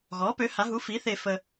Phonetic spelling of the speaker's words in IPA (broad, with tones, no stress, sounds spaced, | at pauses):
ɣ ɔ˩˥ p ø˩˥ h a˩˥ ɦ u˩˥ f i˩˥ θ e˨ f ə˨